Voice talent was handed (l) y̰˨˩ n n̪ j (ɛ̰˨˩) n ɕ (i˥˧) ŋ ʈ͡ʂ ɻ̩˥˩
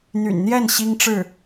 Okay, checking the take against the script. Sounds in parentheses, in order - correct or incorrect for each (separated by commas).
incorrect, incorrect, incorrect